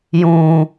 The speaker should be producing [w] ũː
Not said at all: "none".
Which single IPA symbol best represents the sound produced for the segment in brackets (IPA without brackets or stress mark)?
j